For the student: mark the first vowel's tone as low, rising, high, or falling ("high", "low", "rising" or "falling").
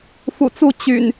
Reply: low